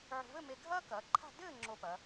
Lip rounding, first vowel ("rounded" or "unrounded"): rounded